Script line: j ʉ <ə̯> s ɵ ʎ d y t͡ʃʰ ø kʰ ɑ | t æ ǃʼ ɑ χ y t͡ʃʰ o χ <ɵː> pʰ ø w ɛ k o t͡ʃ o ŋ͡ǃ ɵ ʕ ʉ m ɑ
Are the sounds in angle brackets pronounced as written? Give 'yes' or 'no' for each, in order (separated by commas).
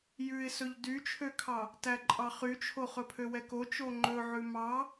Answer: no, no